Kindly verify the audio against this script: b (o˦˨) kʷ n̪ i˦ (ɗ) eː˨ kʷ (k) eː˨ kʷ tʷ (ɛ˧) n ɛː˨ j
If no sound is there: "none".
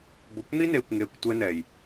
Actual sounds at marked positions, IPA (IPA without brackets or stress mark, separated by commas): o˨, n, ŋ, ɛ˧